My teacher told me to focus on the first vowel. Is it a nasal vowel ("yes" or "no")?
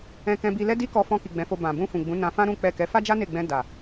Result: yes